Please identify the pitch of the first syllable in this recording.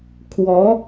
rising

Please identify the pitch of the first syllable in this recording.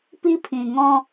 high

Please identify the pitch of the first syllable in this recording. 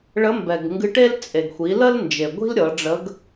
rising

